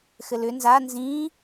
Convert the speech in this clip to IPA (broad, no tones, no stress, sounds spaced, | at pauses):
x ɘ l ʏ n z a n z ĩ